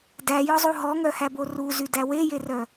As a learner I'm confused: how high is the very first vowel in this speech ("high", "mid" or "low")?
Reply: low